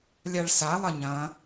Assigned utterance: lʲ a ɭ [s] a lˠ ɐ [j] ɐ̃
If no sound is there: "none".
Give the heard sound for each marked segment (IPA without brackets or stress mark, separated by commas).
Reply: s, ɲ